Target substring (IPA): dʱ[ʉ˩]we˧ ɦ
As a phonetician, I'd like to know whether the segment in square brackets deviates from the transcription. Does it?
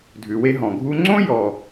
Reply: no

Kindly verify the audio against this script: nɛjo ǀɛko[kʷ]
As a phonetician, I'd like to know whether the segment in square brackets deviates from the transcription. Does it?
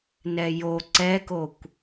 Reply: no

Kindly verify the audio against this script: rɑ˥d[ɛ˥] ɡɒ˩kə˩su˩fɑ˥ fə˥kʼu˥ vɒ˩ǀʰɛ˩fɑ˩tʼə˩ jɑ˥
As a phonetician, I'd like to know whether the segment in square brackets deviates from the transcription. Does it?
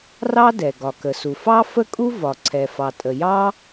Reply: yes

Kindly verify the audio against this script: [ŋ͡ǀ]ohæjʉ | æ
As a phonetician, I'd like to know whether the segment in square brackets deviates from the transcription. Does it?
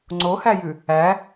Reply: no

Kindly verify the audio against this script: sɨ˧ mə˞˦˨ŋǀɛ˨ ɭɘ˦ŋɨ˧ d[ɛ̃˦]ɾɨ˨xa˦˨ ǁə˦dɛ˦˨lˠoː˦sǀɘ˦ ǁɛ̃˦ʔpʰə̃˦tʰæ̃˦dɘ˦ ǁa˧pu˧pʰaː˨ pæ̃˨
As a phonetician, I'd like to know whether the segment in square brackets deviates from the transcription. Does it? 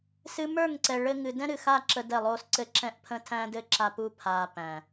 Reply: no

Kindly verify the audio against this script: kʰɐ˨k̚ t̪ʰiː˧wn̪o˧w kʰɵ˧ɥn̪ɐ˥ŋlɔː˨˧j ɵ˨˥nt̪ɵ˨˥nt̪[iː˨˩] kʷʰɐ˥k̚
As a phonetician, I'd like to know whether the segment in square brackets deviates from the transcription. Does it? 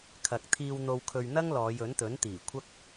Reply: no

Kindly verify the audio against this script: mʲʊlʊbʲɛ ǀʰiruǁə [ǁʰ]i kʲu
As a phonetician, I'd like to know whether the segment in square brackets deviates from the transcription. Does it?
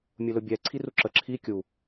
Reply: no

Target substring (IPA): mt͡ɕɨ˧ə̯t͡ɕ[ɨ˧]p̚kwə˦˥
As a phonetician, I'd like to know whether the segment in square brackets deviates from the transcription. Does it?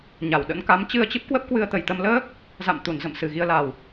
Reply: yes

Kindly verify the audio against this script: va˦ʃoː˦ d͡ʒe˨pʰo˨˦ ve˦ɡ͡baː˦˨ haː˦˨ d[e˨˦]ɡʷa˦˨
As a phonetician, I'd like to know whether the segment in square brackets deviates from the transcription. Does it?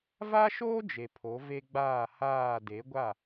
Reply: no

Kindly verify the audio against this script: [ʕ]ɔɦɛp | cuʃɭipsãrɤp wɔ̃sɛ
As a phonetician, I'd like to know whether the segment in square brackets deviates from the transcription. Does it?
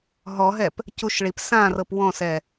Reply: yes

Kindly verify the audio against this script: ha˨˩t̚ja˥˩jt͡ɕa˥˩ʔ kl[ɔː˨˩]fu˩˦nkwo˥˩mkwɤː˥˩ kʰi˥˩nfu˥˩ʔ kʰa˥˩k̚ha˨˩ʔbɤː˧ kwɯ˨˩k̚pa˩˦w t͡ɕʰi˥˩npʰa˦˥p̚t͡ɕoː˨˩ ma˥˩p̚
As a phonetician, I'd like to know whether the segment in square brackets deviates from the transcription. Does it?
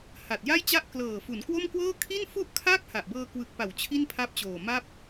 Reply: yes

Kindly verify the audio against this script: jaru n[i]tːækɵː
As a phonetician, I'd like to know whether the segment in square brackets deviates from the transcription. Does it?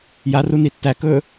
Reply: no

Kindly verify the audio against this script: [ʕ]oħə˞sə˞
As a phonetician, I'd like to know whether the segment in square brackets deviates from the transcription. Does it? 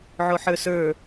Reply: no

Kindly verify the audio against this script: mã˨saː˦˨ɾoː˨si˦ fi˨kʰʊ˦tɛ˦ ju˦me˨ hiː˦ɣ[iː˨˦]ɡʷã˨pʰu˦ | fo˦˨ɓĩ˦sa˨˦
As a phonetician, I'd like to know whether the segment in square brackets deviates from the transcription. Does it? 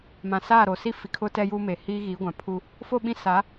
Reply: no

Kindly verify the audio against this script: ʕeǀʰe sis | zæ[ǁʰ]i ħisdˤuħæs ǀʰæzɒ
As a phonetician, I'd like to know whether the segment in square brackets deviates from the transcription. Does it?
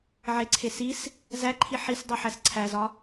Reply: yes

